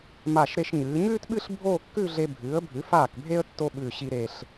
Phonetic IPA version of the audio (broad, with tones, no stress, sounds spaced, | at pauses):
m a˧˩ ʃ ɾ e˧ ʃ ɲ ɨː˩˧ ɲ ʉː˥ t ɓ ɨ˥˧ ɬ bʱ oː˥˧ kː ʉ˥˧ ɮ e˧ bʱ ɨː˩˧ ə̯ bʱ ʉ˩˧ f aː˧˩ k bʱ e˧ ə̯ tː o˥ ɓ ʉː˧˩ ɕ i˧ ɾ e˧˩ ɬ